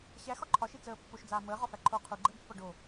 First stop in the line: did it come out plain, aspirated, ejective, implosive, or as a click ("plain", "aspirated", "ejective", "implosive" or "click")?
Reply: click